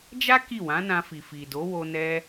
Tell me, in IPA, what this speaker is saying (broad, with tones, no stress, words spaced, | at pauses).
d͡ʒa˦ ki˦˨wã˨˦nã˧fi˨ fi˨do˨˦wo˧ nɛ˧